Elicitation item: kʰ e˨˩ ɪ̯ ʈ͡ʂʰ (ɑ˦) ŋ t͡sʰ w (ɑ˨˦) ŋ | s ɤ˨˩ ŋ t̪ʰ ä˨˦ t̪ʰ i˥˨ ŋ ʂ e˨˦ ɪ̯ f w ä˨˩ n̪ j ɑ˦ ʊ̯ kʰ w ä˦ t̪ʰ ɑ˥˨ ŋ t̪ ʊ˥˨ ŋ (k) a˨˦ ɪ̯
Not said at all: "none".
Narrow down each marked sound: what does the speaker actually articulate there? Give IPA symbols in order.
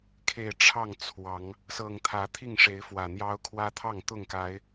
ɑ˥˨, ɑ˨˦, k

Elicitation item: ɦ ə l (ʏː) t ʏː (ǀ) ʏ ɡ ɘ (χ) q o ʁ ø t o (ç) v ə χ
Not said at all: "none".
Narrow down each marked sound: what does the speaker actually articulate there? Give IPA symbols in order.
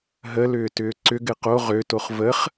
ʏː, ǀ, none, χ

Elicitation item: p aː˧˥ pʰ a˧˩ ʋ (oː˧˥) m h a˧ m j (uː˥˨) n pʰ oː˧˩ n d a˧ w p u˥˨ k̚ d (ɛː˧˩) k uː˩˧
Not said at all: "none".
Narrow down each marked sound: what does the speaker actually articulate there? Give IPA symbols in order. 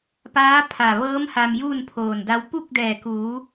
ɤː˧˥, uː˥˨, ɛː˧˩

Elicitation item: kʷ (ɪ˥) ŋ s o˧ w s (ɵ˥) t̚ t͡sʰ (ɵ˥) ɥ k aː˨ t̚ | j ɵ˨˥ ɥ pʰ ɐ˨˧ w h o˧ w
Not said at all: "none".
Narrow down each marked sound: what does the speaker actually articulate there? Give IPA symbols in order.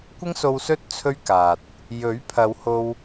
ɪ˥, ɵ˥, ɵ˥

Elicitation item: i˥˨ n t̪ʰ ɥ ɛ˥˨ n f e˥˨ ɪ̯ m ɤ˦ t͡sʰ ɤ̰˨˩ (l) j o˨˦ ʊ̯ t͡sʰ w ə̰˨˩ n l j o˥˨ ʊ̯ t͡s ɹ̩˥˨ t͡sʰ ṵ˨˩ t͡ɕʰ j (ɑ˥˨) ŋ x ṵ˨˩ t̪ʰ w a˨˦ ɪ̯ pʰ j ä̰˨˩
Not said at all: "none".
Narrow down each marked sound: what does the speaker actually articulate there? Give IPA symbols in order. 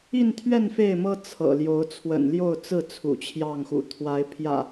l, ɑ˥˨

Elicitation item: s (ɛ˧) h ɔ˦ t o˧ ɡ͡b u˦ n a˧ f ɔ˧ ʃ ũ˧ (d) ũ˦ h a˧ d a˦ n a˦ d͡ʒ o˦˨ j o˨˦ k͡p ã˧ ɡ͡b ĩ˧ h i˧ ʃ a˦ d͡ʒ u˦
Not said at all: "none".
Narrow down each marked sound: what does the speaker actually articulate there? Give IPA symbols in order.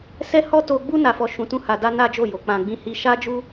ɛ˦, t

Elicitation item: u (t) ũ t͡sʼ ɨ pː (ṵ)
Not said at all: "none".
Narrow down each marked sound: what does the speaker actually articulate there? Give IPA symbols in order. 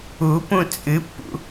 p, ṵ

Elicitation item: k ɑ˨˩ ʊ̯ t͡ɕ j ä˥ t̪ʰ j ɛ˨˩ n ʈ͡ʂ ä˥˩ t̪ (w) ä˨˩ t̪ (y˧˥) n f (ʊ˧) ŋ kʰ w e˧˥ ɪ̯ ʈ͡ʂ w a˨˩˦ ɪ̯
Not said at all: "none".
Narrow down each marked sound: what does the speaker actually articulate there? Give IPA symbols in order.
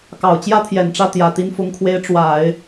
j, i˧˥, ʊ˧˥

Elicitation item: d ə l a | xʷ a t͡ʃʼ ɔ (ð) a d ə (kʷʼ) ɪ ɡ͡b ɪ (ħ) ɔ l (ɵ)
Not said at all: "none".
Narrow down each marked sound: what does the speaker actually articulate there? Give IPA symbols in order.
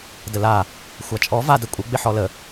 v, kʷʼ, ħ, ə

